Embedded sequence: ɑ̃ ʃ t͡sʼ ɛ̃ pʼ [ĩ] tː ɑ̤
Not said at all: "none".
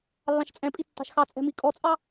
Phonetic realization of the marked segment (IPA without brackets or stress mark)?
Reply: i